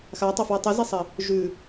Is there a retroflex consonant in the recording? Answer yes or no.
no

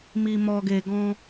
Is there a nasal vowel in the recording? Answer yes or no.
yes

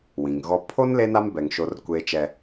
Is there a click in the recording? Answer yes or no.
no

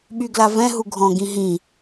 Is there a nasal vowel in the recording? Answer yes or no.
yes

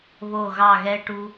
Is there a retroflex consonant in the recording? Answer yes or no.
yes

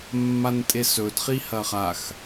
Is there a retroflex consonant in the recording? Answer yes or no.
no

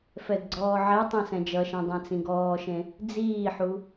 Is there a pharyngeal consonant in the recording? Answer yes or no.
yes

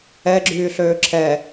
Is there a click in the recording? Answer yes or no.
yes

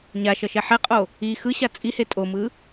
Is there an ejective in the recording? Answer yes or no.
yes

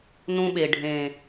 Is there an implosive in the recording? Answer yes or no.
yes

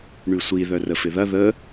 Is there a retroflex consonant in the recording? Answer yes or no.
yes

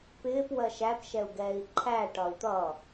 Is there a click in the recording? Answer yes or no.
yes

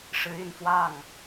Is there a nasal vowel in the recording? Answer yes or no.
no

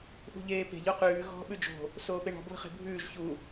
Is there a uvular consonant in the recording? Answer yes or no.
yes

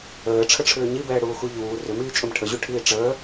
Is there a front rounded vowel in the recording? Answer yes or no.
yes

